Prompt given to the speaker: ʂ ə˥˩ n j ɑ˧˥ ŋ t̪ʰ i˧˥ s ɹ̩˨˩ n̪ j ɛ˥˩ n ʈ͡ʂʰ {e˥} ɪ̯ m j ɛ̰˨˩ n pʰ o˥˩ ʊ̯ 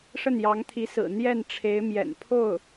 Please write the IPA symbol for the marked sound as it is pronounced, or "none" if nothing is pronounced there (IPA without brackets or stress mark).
e˧˥